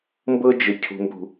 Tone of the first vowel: high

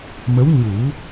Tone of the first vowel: rising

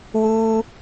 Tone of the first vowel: low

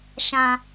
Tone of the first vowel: low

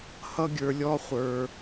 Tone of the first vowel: high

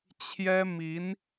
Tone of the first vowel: high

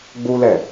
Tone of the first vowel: high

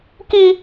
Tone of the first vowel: high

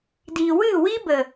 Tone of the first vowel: low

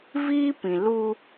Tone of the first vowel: high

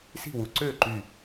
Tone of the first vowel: falling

